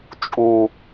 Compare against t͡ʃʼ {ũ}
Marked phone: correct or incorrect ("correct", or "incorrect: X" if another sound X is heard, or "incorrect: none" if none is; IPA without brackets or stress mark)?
incorrect: u